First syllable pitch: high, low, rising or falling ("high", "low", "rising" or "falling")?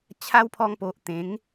high